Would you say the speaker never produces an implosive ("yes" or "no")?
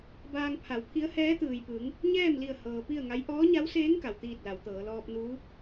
yes